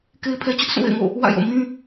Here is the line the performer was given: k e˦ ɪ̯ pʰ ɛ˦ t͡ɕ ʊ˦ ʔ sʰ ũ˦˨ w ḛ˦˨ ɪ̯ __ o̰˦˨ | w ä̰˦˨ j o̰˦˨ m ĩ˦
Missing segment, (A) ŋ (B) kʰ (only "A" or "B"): A